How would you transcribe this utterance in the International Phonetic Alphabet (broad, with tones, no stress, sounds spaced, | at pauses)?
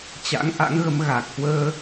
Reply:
t͡ɕ a̰˧˥ ŋ ʔ a̰˧˥ ŋ ɣ ə˨˦ m ɣ a˨˩ k̚ h w əː˧